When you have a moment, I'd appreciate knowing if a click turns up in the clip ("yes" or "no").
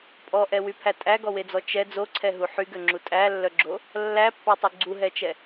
yes